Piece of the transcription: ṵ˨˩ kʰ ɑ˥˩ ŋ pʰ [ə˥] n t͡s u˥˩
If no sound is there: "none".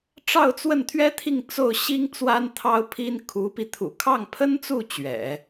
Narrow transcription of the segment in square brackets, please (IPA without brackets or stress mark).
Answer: ə˥